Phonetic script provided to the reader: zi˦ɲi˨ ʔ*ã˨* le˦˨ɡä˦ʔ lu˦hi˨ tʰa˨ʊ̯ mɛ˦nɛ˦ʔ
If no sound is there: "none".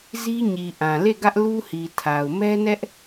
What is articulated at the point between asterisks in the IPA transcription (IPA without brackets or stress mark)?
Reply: ã˨